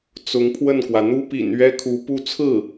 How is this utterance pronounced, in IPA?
t͡s ʊ˧˥ ŋ pʰ w ə˥˩ n k w ä˩ n̪ u˥ p ḭ˨˩ n ɥ ɛ˥ kʰ u˧˥ p u˥ t͡sʰ ɹ̩˥˩

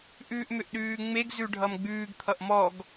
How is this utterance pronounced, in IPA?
ʔ ʉː ʔ m ʏ ʔ ɗ ʉː ŋ͡m e ɡ z ʉ ɖʱ ʌ m ɡ͡b ʉː ɡ t̪ʰ ʌ ʔ m ɔ ɡ

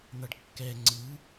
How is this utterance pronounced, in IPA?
n̪ ʌ ɖ kː ɛ ŋ͡ǀ ɯ

